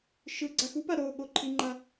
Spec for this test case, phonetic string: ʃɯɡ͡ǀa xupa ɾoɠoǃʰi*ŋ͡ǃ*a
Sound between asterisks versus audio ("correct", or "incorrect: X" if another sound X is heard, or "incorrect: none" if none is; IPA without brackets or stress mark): correct